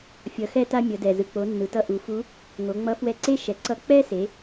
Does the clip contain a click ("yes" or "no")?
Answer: yes